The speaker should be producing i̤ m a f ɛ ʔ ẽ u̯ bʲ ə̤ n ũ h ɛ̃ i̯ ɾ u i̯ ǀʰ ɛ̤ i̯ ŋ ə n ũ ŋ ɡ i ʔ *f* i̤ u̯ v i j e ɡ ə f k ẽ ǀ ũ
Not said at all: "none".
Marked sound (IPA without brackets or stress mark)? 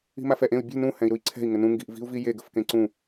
v